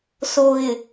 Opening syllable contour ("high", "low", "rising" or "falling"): low